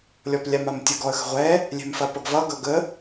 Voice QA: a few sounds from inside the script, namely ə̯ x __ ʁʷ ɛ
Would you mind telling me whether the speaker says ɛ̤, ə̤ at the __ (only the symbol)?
ə̤